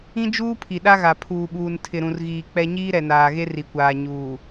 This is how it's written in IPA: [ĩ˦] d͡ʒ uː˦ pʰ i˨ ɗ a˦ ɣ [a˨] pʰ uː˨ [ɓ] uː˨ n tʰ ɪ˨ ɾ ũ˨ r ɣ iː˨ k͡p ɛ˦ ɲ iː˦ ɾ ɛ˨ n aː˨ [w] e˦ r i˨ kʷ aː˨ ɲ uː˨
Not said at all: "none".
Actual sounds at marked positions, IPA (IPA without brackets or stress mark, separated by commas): ĩ˦, a˨, ɓ, ɣ